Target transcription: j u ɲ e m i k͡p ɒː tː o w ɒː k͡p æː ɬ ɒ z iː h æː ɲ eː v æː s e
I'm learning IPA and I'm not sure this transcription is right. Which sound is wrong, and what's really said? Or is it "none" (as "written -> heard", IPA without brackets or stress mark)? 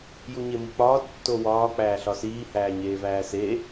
z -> s